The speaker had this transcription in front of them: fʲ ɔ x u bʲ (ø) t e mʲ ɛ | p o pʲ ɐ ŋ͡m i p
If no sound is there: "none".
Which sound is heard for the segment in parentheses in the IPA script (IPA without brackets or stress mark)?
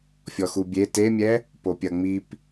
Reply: e